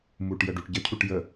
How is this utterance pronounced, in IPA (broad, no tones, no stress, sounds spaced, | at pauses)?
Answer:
m u ʈ j ə ɖ u ʈ ɟ ə cʰ u ʈ j ə